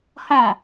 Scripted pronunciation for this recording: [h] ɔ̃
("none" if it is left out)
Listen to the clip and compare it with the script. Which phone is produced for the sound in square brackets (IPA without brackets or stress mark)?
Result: h